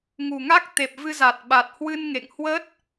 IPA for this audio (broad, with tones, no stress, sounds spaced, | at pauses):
ŋ u˨˩ ŋ a˦˥ k̚ t̪ e˨˩ p̚ v ɨ˧ z a˨˩ t̚ ɓ a˨˩ t̚ h w ɨ˧ n ŋ ḛ˧˨ ŋ h w ə˦˥ t̚